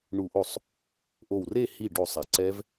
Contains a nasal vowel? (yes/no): no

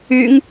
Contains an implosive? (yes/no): no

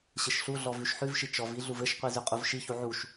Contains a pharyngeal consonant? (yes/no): yes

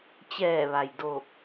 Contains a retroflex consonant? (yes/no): no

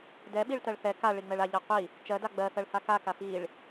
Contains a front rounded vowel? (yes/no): no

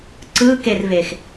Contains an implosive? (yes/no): no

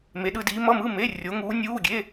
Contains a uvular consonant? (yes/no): no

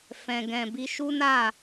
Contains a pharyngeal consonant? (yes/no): no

